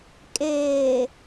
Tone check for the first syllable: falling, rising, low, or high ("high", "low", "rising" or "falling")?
low